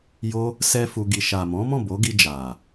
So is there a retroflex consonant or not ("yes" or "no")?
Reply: no